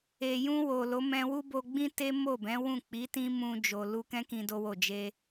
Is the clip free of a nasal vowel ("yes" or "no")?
no